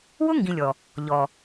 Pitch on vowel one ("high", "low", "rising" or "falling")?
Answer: high